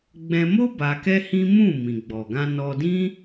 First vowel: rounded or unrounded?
unrounded